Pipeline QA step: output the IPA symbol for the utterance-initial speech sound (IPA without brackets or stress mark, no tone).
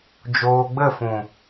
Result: d͡ʒ